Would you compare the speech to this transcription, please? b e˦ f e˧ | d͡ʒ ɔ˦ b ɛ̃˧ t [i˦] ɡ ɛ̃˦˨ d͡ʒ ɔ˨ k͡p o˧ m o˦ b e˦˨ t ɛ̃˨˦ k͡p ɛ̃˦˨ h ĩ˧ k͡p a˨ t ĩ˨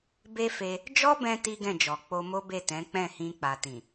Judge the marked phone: correct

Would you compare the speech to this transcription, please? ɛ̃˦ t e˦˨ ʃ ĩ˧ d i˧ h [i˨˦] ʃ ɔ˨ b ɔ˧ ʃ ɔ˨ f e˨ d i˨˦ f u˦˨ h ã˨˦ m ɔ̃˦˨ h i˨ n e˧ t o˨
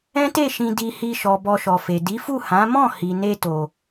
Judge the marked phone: incorrect: i˧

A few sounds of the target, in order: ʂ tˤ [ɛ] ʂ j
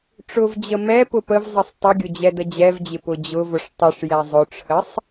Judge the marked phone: incorrect: ə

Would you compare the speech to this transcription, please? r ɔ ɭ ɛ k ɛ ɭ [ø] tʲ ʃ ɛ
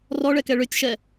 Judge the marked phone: correct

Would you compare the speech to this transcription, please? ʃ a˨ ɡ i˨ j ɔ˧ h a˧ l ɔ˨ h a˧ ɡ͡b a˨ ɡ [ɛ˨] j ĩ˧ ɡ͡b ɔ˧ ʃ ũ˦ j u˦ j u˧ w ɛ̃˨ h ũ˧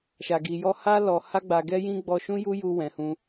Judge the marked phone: incorrect: ɛ˧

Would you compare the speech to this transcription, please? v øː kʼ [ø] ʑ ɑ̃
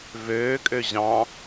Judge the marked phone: correct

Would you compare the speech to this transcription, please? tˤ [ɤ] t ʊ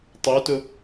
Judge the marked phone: incorrect: o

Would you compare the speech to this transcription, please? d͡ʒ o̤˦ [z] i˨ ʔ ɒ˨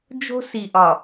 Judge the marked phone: incorrect: s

